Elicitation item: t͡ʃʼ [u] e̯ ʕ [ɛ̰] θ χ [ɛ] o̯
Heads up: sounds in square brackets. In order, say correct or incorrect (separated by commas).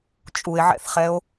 correct, correct, correct